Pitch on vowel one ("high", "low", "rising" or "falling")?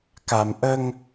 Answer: low